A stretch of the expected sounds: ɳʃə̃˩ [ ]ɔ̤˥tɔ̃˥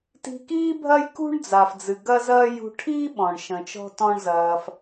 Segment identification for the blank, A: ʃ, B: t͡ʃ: B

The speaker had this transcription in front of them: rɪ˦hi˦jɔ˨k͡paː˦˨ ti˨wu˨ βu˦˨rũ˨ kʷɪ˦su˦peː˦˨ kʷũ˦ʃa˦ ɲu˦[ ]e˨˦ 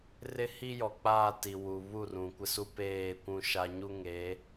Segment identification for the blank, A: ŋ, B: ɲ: A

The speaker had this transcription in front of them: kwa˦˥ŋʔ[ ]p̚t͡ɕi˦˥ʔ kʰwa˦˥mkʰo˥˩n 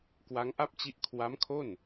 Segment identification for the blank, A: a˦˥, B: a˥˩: B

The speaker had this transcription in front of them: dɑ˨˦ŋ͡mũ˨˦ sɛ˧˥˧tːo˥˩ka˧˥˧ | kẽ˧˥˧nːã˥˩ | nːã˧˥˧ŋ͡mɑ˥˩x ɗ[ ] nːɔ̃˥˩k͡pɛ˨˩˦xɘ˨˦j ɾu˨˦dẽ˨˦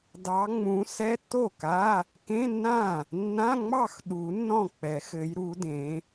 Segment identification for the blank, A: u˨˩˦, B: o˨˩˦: A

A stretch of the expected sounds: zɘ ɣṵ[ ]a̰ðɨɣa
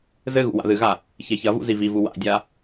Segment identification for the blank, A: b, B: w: B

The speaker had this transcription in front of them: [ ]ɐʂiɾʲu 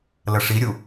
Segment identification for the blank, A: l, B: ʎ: A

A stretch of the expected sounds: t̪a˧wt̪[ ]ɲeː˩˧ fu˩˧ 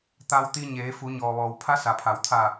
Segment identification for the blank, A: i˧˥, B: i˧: B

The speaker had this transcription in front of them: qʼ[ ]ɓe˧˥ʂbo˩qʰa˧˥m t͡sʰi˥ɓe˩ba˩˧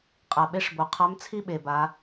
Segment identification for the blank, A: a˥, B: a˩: B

